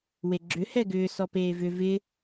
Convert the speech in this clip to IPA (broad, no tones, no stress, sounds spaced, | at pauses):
w e ɡ͡ǁ ʏ h ɛ ɡ ʏː s ɔ p eː v ʏ v ɪ